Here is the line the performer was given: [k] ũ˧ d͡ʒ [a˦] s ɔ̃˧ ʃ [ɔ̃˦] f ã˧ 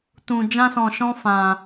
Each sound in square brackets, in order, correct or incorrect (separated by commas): incorrect, incorrect, correct